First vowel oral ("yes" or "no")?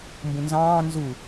no